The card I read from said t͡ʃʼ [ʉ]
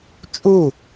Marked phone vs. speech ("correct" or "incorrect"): incorrect